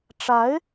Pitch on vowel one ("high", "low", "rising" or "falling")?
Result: rising